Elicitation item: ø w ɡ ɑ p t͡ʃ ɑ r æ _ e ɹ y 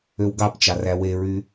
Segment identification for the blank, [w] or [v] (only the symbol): w